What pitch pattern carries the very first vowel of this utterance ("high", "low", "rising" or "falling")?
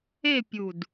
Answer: falling